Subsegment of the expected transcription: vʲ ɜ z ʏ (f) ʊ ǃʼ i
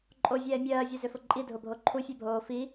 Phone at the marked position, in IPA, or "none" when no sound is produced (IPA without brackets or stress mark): f